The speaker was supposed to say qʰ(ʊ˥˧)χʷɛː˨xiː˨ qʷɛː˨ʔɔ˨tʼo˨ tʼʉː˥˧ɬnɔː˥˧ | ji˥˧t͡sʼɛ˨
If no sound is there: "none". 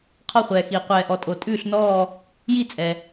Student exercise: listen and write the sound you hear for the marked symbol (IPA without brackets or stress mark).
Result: ɔ˥˧